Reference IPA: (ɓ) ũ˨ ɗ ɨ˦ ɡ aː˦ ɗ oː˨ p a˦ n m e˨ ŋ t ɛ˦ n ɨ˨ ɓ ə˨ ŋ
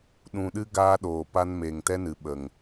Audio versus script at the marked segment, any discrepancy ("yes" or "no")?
yes